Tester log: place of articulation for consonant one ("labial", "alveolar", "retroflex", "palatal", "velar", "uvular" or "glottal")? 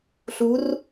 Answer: alveolar